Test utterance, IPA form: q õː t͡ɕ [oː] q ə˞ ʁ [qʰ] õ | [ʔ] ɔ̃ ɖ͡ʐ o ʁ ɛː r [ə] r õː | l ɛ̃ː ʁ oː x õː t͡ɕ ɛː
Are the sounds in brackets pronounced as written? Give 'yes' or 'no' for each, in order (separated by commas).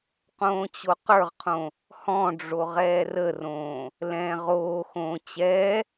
no, yes, no, yes